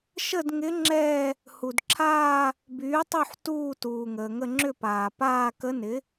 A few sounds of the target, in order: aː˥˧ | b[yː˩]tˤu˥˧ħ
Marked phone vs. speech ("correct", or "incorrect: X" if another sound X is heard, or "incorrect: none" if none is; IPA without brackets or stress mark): incorrect: yː˩˥